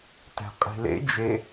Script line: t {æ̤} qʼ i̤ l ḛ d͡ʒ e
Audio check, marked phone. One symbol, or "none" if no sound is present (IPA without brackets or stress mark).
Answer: æ̤